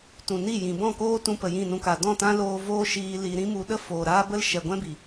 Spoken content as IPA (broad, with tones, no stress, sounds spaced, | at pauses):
t ũ˨ n i˦˨ j ĩ˨ b ɔ̃˦˨ k oː˦ t ũ˧ p ə˨ j ĩ˦˨ n ũ˧ k a˨ d ɔ̃˦˨ t ã˦ l oː˦ v oː˦ ʃ iː˧ l i˧ ɾ ĩ˦ m u˧ ɗ ə˦ f oː˨ ɾ aː˦ b ə˦ l ʃ ɛ˨ ɡʷ ɛ̃˦ b i˨